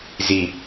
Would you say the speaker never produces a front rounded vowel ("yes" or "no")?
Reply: yes